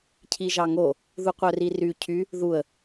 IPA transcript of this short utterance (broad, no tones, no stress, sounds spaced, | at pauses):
cʰ i ʒ ɑ ŋ o | ð u qʷ œ r i r y cʰ y | ð u ə̯